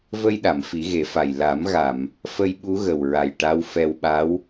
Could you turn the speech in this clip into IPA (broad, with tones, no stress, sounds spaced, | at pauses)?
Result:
v ə˧ j ɗ a˨˩˨ m f i˨˩˦ ɣ e˨˩˦ f a˨˩ j l a˨˩˦ m ɣ a˨˩˨ m | f ə˧ j ɓ u˧˥ ɣ ə˨˩ w ɹ a˨˩ j ʈ a˧˥ w f ɛ˧ w ɓ a˧˥ w